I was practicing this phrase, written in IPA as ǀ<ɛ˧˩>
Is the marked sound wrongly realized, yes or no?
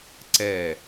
no